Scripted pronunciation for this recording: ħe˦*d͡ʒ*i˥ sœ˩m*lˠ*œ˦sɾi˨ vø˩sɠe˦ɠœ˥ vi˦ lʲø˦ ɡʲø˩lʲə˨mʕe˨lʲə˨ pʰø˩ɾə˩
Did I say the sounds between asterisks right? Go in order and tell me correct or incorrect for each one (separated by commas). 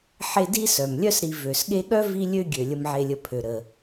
incorrect, incorrect